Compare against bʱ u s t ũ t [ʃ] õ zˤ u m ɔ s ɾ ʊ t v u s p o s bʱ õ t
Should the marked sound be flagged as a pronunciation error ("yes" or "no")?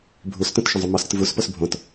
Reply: no